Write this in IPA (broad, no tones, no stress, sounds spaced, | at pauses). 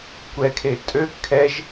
kʷ ɛ kʰ e tʼ ø kʰ ɛ ʒ